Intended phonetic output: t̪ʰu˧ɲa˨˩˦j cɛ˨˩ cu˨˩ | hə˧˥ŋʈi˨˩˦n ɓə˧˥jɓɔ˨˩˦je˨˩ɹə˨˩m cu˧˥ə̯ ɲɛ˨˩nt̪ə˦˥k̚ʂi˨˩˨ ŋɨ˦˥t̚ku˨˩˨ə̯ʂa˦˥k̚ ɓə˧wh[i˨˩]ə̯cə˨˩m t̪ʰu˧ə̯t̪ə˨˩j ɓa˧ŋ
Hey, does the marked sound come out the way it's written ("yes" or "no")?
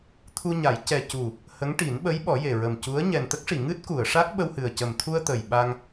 no